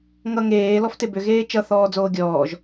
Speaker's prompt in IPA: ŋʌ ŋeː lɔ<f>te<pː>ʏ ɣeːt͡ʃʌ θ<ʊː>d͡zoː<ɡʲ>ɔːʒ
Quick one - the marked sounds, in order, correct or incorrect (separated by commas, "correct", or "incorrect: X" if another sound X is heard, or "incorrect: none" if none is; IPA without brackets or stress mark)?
correct, incorrect: b, incorrect: ɔː, correct